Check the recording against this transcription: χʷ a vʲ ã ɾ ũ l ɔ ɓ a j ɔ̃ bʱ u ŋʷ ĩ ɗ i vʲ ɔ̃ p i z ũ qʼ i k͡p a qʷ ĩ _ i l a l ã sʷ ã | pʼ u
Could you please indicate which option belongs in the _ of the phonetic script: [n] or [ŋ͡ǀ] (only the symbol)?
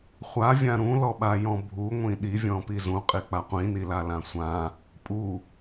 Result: n